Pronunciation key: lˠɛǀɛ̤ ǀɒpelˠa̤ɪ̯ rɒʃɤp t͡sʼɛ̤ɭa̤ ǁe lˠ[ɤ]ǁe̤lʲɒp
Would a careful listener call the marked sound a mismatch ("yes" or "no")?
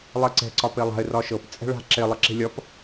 no